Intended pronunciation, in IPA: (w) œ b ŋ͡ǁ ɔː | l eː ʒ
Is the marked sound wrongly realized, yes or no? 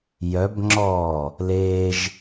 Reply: yes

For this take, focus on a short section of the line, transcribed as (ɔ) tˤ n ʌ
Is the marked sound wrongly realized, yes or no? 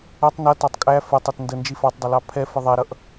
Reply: yes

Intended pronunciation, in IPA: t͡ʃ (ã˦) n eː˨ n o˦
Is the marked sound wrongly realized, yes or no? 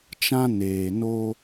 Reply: no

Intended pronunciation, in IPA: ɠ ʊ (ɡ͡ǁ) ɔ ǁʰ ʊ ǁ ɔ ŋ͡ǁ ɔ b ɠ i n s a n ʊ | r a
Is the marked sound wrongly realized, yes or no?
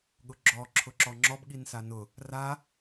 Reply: no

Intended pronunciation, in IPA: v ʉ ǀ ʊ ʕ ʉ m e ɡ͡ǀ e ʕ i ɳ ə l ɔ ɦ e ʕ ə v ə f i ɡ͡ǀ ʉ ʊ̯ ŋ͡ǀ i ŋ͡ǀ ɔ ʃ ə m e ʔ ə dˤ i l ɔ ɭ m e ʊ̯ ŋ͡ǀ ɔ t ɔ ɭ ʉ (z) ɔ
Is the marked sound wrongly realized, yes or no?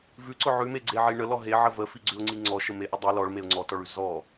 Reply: no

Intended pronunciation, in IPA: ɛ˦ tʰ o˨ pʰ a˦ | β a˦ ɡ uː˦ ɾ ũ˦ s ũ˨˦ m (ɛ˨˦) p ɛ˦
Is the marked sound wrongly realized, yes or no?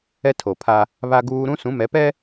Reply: no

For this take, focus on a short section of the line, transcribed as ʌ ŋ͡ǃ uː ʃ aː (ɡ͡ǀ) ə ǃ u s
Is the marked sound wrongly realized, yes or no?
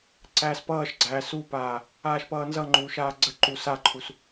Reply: no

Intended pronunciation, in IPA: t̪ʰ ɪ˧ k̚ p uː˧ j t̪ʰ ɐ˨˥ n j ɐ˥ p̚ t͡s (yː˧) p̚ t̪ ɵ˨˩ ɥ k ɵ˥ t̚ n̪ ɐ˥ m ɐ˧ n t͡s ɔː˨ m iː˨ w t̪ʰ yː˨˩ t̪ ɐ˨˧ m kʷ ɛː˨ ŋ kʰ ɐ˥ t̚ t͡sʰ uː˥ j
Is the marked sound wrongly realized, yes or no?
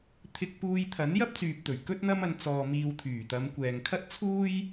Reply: yes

